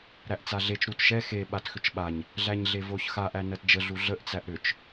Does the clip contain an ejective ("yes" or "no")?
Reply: no